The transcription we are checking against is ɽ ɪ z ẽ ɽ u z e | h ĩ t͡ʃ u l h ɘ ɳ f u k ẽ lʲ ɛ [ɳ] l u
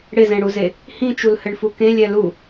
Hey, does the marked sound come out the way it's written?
no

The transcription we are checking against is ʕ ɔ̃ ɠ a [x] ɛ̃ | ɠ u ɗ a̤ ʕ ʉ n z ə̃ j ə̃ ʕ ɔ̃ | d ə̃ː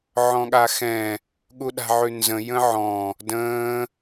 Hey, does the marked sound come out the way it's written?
yes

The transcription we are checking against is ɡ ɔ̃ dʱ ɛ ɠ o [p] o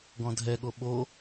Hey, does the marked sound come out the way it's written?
no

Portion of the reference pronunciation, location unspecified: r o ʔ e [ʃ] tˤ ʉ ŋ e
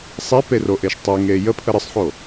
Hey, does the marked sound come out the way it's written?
yes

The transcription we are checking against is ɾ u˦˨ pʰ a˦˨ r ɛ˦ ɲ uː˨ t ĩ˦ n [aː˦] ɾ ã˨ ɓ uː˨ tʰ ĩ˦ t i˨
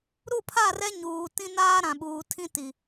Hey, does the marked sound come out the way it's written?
yes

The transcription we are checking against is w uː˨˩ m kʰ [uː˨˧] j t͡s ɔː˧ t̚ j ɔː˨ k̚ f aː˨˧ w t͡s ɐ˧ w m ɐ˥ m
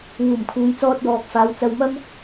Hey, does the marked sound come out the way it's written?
yes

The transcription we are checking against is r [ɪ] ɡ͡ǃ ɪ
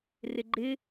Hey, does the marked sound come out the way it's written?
yes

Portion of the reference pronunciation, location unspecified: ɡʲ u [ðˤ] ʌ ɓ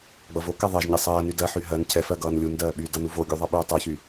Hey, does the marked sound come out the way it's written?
yes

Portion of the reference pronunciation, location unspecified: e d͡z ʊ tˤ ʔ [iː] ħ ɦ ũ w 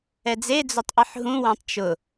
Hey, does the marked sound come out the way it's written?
no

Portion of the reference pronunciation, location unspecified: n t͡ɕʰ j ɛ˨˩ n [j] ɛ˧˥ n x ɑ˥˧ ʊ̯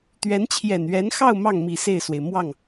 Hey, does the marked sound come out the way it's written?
no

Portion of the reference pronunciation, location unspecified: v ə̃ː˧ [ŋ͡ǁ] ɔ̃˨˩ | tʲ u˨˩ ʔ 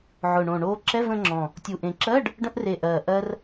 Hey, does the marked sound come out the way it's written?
yes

